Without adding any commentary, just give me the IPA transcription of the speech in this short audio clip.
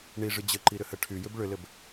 ɳ i ʐ ɨ d͡ʑ ə ǃ i ɾ ʏ h ə ʈʰ y j ʏ b ɭ ʏ l ɘ b

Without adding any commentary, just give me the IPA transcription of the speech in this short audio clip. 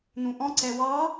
n̪ ũ ʔ ɔ̃ ǀ ɛ w ɑ

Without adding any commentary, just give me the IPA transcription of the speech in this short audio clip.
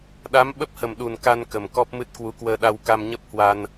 ɗ a˨˦ m ɓ ə˦˥ p̚ h ə˨˩ m ɗ u˨˩ n k a˧ n k ə˨˩ m k ɔ˦˥ p̚ m ɨ˦˥ t̚ k w u˨˦ k w əː˧ ɗ a˧ w k a˧ m ɲ ə˦˥ p̚ h w a˧ n

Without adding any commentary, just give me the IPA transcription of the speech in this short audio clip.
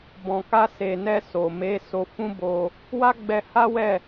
b ɔ̃˨ k a˧ s e˨ n ɛ˧ s o˨ m e˨˦ s o˧ f ũ˦ b o˧ | w a˦ ɡ͡b ɛ˧ h a˦ w ɛ˦˨

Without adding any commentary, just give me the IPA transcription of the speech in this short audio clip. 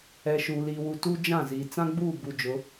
ɛ˨ ʃ uː˨ l iː˨ w u˨ t u˦ d͡ʒ ã˦˨ z iː˨ t͡s ã˦ ɡ͡b uː˦˨ b u˨ d͡ʒ ʊ˨˦

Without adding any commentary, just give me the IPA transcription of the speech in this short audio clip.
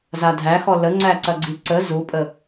z a dʱ æ x ɔ l ə ŋ͡ǀ æ ǀ ɐ ɡ͡ǀ i ǀ ə z u pʼ ə

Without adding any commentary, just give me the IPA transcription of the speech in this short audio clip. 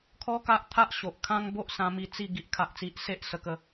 kʰ ɔ˦ k a˦ ʔ t̪ʰ a˦ ʔ ɕ o˨ ʔ kʰ ã˦ ŋ b o˦ ʔ s ã˧ m i˧ t͡s i˥˧ ɡ i˦ ʔ kʰ a˦ ʔ t͡s i˦ ʔ s e˦ ʔ s ə˧ k ə˧

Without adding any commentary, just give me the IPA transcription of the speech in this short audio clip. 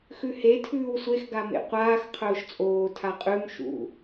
x ʉ h e tʰ ʉː w sʷ e x ɡ a m ḛ qʷ aː x qʰ ɵː ʃ t͡sʼ oː tʰ a qʼ ʉ m ʃ ṵ

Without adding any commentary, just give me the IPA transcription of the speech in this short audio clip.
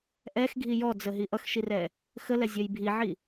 ʔ ɛ x ɡʱ i j ɔ d͡z ə ɦ i ʔ ʌ x ʃ i r ɛ | x ə l ɛ zʲ ʌ j bʱ i ʕ i

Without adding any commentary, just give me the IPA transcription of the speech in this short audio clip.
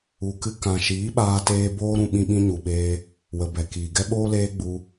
u˨ k ɨ˧ k ã˨ ʃ iː˨˦ ɓ aː˧ t eː˦ b oː˦ ɾ ũ˧ ɓ ĩ˧ ɓ ĩ˧ ɲ u˨ ɓ eː˧ | w ə˨ b ɛ˨ k iː˨ ɡ ɛ˦ ɓ oː˦ l eː˦ ɡ͡b u˧

